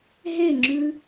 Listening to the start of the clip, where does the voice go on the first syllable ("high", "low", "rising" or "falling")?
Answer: falling